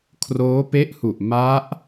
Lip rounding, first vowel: rounded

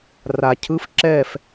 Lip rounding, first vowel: unrounded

